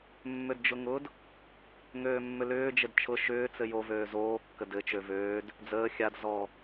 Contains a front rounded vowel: yes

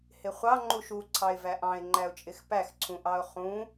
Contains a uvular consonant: yes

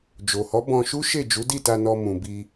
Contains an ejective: no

